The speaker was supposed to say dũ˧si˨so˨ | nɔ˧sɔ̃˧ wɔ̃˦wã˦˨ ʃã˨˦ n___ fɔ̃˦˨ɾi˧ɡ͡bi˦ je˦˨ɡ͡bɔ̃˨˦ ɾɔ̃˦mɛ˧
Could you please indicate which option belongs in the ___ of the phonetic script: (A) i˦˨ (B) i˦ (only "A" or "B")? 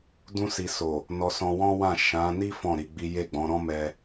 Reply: B